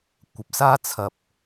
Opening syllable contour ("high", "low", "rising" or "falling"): low